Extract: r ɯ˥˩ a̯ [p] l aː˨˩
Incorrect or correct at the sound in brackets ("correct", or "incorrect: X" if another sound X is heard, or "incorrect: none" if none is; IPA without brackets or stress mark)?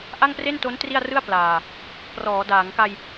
correct